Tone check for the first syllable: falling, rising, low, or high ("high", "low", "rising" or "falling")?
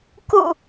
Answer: low